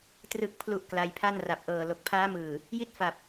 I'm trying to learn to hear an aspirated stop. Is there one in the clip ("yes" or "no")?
yes